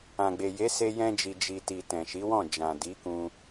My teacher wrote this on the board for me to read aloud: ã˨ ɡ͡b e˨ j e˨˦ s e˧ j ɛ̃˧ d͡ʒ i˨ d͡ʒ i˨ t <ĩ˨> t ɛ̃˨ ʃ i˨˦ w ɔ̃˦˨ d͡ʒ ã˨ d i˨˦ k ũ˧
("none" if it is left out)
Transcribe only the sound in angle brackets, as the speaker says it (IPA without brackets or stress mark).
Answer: i˨